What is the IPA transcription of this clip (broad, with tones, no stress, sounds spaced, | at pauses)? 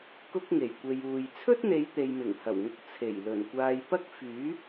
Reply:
k ʊ˥ k̚ ŋ e˨˩ j kʷ e˨ j uː˨ j t͡sʰ ɵ˥ t̚ n̪ e˨˧ j t̪ e˨ j m ɪ˨˩ ŋ h ɐ˨˩ w ŋ ʊ˨˥ k̚ t͡sʰ e˨˩ j l ɵ˨˩ n kʷ aː˧ j p ɐ˥ k̚ f yː˨˥